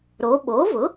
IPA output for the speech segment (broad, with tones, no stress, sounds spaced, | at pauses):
ɾ o˩˧ ɓ o˩˥ v ʊ˩˥